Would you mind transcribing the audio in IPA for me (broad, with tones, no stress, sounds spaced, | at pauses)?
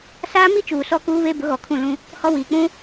s aː˦ m i˦ t͡ʃ uː˨ s ɔ˦ k uː˦ β e˦ b ʊ˨˦ ɣ ɔ˨ kʰ ũ˦˨ l ũ˦ | h ɔ˦ w iː˨ k͡p ũ˦